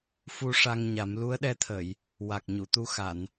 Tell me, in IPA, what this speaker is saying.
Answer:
f u˧ ʂ a˧ ŋ ɲ a˨˩˦ m l u˧˥ ə̯ ɗ ɛ˧ t̪ʰ ə˨˩˨ j | w a˨˩ k̚ ɲ u˨˩˨ t̪ u˧ x a˨˩˨ n

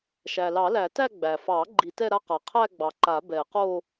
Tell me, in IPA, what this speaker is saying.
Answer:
ʃ æ˩ l ɑ˨˩˦ l æ˨˩˦ t æ˥˧ ɡ͡b æ˩ f ɑ˨˩˦ ɡ͡ǃ i˨˩˦ t ɛ˥˧ ɾ a˥˧ q a˩ qʰ æ˥˧ ɡ͡b ɑ˩ ǃ a˨˩˦ b ɛ˨˩˦ q o˥˧

